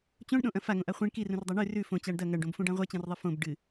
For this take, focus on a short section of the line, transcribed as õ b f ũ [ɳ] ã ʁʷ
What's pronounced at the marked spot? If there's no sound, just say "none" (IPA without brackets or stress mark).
ɖ